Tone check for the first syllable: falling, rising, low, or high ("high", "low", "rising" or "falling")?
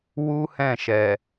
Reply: high